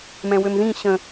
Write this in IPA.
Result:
m ɛ̃ w ø m ð ĩ ɕ ə̃

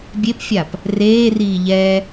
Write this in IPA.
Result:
bʲ e p fʲ a p | r eː r iː ʎ ɛ

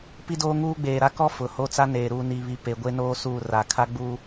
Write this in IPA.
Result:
p i˦ d oː˦ ŋ uː˦ ɡ͡b eː˨ ɾ a˦ k ɔ˦ f ʊ˨ h o˦ t͡s a˦ n eː˨ ɾ uː˨ n i˨ β i˨ p e˨ ɡʷ e˦ n oː˦ s uː˦˨ r a˨ kʰ a˦ ɡ͡b u˦

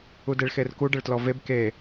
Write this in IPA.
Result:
u d e ɭ x e r k u ɖ ə ɭ t l ɔ v e b k e

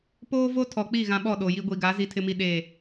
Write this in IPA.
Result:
p oː˦ v o˦ tʰ ɔ˨ k͡p i˦˨ ɣ ã˦ ɓ ɔ˦˨ ɗ o˨ j i˦ ɡʷ i˨ ɡ a˨˦ z i˦ tʰ ɪ˦ m i˦ ɗ eː˦˨

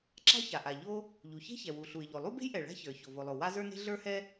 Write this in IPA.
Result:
ǁ a̤˥ ç a˩ ʔ a˩ ʎ o˥ | ʎ u˩ ç e̤˥ ç ɛ˩ w u˩ ɬ u˩ ɪ̯ ʎ o˩ lˠ u˥ b e̤˥ j ʔ ɛ˩ ɭ a̤˥ ç ə˞˩ ç o˩ v o˩ lˠ o˩ w a˥ z ə˞˥ n e̤˥ ɮ ə˞˥ h ɛ˥

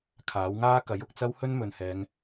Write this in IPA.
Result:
kʰ aː˨˥ w ŋ aː˥ k ɐ˨˥ j ʊ˨ k̚ t͡s ɐ˥ w h ɵ˥ n m ɵ˨ n h ɛː˨˧ ŋ

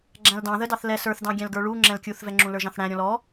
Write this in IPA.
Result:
ɡ͡ǁ æ̃ l d ɑ̃ ð ə d ɑ θ l ɛ s ə˞ θ d ɑ̃ ɡʲ æ̃ l ɡ ə˞ ɭ u ŋ͡ǁ ɛ̃ l kʲ u θ v ɛ ŋ͡ǁ ũ l ə˞ ʒ ɑ̃ θ ɽ æ̃ ɾʲ ɔ̃ l ɔ

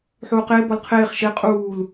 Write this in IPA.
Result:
ħ uː q eː b ɔ l qʰ eː χ ʃ e qʼ uː l

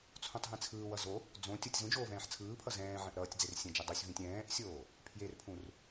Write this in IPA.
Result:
t͡sʰ ũ tˤ ɦ ĩ t͡sʰ ɯː w ʌ z o | d͡z õ tʲ o tʲ z ũ d͡ʒ oː v ɛ̃ː ħ t͡sʰ ɯː pʰ ʌ z ɛ̃ː ʕ ɛ̃ ʔ ɾ ʌː tʲ d͡z e r sʲ ɛ̃ d͡ʒ i dˤ u sʲ v ĩ tʲ ɛ̃ː ʔ sʲ oː | pʰ j e r pʰ ũ r

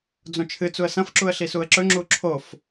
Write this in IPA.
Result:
d͡z õ t͡ʃʰ ɨ t͡s u ə̯ s ɐ̃ f ǁ u ə̯ ɬ i s u ə̯ ǁ ɵ ŋ͡ǁ u ǁʰ o f

